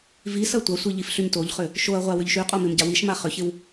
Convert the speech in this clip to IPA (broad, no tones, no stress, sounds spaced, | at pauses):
v i s ɐ tʷ ɐ sʷ i ʎ i f ɬ y ɲ t o ʎ χ ʏ | ʃ o ɐ̯ ʁʷ a w ʏ ʎ ʃ y qʼ o m ɪ m ɟ a w i ʃ m a χ ʏ ç ɪ w